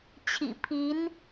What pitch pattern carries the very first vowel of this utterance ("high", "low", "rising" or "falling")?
low